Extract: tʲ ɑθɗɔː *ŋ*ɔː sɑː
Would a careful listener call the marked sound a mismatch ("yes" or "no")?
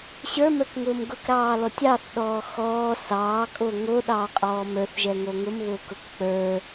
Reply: yes